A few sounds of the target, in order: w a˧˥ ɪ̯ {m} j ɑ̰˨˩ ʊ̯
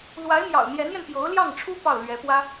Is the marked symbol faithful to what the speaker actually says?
yes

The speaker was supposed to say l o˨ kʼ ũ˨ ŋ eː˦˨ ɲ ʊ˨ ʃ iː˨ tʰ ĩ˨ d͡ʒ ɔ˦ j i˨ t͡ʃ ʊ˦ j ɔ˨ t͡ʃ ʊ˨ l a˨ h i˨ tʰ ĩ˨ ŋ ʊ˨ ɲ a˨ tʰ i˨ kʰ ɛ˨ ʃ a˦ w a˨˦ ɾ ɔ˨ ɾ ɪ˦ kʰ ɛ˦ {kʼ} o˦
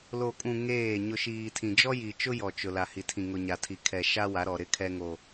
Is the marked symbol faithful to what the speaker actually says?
no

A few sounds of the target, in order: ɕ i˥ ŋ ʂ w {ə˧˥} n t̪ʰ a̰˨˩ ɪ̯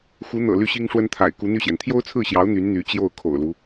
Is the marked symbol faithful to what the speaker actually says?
no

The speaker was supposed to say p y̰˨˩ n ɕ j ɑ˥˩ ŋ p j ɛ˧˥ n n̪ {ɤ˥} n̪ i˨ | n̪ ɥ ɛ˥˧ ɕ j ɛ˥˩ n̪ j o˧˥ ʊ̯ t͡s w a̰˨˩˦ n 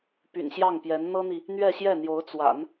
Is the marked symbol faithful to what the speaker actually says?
yes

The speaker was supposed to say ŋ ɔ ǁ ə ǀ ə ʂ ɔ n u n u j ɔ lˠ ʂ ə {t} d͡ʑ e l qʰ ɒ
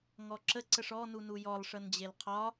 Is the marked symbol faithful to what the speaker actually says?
no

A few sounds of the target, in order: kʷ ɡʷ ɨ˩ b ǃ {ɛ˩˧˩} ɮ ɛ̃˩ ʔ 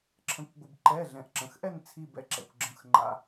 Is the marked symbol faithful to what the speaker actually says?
yes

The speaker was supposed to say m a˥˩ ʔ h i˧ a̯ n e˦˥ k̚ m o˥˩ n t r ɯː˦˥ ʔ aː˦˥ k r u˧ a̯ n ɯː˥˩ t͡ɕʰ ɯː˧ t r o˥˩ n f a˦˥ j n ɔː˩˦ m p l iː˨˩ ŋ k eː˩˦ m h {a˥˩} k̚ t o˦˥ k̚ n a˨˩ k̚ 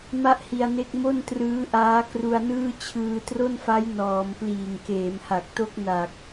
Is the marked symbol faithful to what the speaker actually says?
no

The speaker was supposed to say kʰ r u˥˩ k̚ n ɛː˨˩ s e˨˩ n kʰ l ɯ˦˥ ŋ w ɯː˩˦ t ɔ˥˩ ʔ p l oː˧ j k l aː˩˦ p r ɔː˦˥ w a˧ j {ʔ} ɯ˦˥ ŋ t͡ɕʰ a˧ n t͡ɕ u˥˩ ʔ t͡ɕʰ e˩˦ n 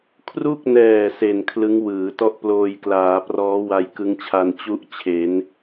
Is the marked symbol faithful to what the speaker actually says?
no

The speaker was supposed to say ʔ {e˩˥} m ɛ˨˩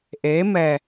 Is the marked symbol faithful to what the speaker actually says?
yes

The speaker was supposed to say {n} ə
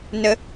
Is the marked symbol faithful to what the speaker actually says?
yes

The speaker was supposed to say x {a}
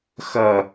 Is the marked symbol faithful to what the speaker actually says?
no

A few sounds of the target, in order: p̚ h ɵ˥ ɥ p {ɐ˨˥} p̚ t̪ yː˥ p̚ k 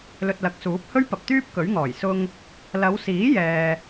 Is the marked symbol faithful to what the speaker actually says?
no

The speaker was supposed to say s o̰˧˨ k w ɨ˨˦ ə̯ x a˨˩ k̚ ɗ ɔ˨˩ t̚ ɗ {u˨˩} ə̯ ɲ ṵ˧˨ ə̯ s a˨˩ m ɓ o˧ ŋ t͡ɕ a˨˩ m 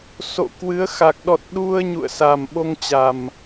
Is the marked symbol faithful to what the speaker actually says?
no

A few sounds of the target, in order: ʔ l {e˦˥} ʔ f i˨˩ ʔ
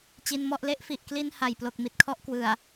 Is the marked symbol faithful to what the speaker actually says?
no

